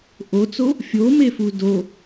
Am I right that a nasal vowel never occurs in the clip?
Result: yes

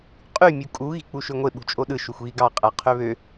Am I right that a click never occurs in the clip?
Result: yes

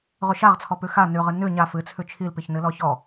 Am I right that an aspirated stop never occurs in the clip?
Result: no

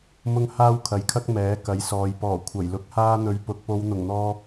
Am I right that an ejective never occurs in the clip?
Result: yes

